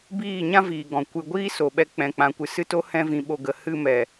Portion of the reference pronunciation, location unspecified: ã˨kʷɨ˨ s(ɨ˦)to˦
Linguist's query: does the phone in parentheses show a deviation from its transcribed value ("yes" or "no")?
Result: no